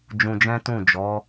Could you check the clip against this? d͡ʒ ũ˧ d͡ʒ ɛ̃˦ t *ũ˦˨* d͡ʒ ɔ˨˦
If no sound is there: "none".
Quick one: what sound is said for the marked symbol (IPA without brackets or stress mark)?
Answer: ũ˦˨